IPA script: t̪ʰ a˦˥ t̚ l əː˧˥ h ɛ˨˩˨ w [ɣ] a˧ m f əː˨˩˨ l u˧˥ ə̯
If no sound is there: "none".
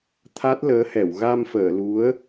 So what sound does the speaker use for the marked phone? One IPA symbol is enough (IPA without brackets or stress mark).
ɣ